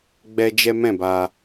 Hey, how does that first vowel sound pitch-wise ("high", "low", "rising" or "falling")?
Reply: high